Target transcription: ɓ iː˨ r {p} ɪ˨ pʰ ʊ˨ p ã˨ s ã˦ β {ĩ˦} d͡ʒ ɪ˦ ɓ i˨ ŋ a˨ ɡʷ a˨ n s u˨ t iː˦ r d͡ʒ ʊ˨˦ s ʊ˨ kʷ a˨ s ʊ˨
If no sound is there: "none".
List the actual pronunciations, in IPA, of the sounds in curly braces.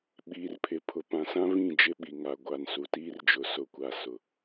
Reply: pʰ, ĩ˦˨

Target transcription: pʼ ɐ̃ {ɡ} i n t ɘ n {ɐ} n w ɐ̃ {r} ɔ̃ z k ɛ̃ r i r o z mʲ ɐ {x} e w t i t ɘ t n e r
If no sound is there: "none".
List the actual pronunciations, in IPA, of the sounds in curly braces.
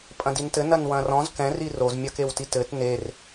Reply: d, ɐ, r, k

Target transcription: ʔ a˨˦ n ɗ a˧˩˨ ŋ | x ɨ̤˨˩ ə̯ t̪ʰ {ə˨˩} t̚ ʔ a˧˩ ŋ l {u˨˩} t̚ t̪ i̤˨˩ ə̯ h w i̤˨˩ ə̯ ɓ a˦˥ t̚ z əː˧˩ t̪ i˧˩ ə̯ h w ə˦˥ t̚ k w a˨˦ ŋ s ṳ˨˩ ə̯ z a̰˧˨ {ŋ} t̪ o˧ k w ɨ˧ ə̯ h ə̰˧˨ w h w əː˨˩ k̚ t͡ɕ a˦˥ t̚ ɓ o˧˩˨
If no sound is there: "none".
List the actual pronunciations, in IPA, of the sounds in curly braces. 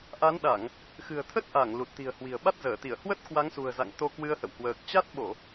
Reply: ə˦˥, u˨˩, ŋ

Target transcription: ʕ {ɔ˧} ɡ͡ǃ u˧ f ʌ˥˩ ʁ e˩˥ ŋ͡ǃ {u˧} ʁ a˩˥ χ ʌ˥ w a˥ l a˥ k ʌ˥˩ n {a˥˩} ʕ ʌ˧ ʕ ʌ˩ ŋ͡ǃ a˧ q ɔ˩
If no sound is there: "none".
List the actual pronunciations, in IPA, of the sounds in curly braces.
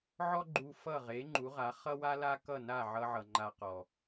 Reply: ɔ˥, u˩˥, a˥˩

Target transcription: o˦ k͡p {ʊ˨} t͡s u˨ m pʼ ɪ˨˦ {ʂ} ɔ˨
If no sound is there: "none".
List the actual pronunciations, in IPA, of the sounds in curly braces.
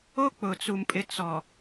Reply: ʊ˨, t͡s

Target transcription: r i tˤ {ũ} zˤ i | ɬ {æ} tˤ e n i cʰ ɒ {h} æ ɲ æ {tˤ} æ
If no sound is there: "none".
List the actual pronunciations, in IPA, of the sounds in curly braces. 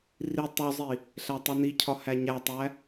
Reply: u, æ, h, tˤ

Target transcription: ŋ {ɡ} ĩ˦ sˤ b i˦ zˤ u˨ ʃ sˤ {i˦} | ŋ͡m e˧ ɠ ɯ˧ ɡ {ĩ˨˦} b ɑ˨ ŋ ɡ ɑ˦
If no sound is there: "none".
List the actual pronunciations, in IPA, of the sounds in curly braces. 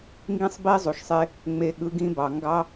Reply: ɡ, e˦, ĩ˦

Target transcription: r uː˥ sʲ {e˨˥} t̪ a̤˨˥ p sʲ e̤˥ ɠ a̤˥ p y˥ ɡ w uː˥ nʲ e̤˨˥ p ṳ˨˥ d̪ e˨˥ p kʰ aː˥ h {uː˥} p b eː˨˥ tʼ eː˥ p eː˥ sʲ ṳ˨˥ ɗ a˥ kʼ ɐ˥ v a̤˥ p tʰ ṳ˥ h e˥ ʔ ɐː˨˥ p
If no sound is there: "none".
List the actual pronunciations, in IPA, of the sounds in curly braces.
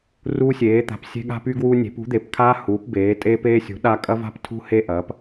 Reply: eː˨˥, uː˨˥

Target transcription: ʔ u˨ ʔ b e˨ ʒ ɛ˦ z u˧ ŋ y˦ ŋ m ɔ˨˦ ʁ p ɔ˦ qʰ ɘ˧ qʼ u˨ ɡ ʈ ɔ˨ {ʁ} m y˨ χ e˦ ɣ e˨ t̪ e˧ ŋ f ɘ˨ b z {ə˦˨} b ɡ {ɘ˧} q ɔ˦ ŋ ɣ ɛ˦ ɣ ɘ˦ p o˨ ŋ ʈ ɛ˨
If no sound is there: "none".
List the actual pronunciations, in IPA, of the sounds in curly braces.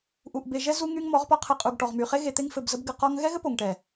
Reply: ʁ, ə˧, ɘ˧

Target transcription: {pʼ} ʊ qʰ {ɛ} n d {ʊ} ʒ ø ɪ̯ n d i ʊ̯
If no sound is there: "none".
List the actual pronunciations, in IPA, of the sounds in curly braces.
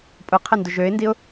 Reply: pʼ, ɛ, ʊ

